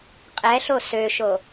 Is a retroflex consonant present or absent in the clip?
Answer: absent